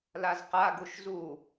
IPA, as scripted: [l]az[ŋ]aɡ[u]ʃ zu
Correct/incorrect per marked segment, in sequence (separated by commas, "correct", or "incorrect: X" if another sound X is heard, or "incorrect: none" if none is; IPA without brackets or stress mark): correct, incorrect: q, correct